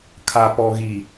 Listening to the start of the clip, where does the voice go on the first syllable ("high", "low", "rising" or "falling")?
low